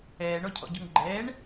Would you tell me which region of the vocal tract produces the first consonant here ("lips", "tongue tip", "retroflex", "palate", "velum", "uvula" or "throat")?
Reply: retroflex